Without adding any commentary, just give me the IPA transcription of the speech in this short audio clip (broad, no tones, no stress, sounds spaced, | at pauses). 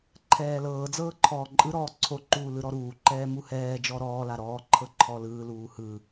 ǃʰ ɛː l ɤː d͡z ɤː ǃʰ ɔː ǃʼ ɯ ɾ ɔː ǀʰ o ǃ uː l ɯ ɾ ɔ ɾ uː ǃ ɛː m u h ɛː d͡ʒ ɔ ɾ ɔː l a ɾ ɔː ǃʰ ɤ ǃʰ ɔ l ɯː l uː h ɯ